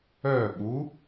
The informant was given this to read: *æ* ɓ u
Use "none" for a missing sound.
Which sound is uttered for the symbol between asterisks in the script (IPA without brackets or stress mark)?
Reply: œ